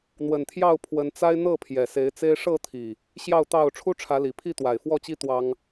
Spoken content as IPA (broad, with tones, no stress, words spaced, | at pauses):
n̪wə˨˩nt̪ʰjɑ˥˨ʊ̯ pʰwə˨˦nt͡sa˦ɪ̯ n̪ɤ˥˨pʰjɛ˨˩ se˨˦ɪ̯t͡se˦ɪ̯ ʂɤ˥˨t̪ʰi˨˩ | ɕjɑ˥˨ʊ̯t̪ɑ˥˨ʊ̯ ʈ͡ʂʰu˦ʈ͡ʂʰä˨˦li˨˩pʰi˥˨ t̪wa˨˩ɪ̯fwɔ˥˨t͡ɕi˦ t̪wɑ˦ŋ